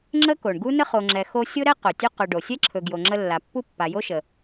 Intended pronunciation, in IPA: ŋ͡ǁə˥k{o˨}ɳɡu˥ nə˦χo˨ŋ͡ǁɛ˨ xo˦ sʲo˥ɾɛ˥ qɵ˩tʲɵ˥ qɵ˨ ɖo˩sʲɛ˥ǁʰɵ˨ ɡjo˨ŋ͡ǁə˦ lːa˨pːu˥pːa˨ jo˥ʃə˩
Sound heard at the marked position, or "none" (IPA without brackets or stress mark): o˩